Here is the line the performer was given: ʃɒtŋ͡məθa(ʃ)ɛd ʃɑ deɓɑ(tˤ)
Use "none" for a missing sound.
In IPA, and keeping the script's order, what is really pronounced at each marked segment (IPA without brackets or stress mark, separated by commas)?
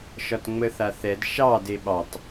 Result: θ, tˤ